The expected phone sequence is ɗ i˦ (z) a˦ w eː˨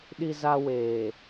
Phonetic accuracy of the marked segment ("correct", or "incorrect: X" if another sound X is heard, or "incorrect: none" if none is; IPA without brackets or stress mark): correct